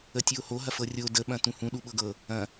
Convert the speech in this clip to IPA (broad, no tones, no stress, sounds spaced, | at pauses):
ə tʲ o h o ɦ ɐ f ɤ rʲ o d ə ɓ ɐ̃ t ũ h ũ ɗ u ɓ ɤ ɡ ɤ | ɐ̃